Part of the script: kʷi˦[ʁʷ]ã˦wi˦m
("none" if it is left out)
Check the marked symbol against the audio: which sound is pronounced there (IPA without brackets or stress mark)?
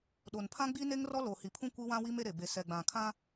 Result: w